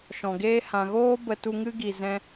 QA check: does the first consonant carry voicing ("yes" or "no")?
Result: no